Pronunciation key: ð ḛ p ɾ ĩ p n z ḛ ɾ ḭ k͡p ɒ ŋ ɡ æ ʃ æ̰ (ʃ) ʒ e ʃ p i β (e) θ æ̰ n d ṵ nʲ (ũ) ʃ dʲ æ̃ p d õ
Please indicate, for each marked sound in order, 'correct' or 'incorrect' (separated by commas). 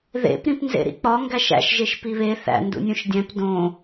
correct, correct, incorrect